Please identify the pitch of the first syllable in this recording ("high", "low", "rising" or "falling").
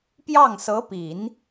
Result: falling